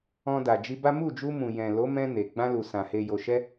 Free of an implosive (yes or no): yes